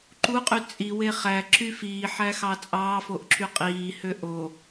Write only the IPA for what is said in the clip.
ǃuqʼy t͡sʼiwe χæǁy fiːħæxɑ t͡sʼɑːfoʔǁy qʼiːhø ʔo

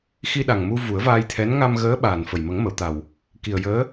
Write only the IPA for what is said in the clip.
xi˧ɗa˨˩ŋ mu˧ vu˨˩˦ə̯vaː˧jt̪ʰɛ˧˥n ŋa˧mɣəː˧˥ ɓaː˨˩n fə˨˩jmə˨˩˦ŋmə˨˩˨wt̪a˨˩w | ki˨˩ə̯jəː˧˥

